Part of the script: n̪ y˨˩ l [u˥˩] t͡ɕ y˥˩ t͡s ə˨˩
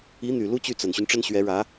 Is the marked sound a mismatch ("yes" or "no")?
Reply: yes